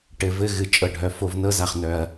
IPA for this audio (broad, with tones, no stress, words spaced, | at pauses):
ʈɘ˩vɘ˨ ɣɨ˩ t͡ʃʼɤ˩ɖʱœ˩ fo˨vnɤ˦za˩χnœ˨ɐ̯